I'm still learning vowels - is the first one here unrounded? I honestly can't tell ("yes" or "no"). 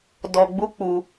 no